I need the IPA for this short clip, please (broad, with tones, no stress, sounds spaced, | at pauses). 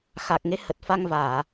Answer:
x a˨˩ k̚ ŋ e˨˦ h ə˨˩ t̚ f a˧ ŋ v aː˧˩˨